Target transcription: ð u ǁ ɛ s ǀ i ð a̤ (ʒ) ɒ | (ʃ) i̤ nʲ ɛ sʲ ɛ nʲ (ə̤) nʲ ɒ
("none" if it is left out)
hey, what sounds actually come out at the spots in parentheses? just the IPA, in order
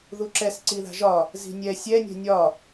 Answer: ʒ, z, ɛ̤

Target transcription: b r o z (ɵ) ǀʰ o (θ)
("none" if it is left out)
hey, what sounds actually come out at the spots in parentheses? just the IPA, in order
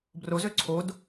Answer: ø, d

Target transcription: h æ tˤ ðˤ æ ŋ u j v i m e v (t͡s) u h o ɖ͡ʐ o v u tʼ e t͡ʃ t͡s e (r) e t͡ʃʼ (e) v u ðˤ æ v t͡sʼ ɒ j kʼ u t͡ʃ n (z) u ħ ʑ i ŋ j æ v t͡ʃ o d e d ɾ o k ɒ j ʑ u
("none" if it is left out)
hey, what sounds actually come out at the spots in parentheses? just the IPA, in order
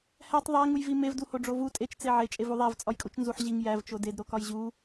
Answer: d, ʕ, e, z

